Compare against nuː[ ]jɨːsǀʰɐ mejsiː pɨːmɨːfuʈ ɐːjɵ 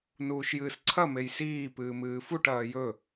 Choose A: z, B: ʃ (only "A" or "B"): B